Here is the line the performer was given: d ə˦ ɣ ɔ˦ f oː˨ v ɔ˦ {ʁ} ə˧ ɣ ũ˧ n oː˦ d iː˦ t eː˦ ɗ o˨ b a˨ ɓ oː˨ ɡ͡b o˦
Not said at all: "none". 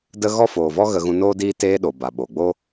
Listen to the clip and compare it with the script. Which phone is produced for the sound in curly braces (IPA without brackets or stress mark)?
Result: ɣ